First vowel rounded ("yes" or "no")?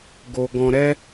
yes